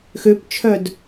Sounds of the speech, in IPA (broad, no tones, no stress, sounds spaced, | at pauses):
x ø p t͡ʃʰ œ d